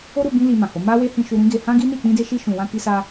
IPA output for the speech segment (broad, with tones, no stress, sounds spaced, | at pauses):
o˦ ɾ u˧ b ĩ˦ l i˧ m ã˨ h o˨˦ m a˦ w e˦ h ĩ˧ ʃ u˧ ɾ ĩ˦ ɡ e˧ h ã˦ ɡ i˦ n i˦˨ k͡p ĩ˧ d e˧ ʃ i˧ ʃ ũ˨ w ã˧ k i˧ s a˧